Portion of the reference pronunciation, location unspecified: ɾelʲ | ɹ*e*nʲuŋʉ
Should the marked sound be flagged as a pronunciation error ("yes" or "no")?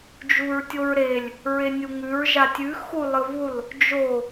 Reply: no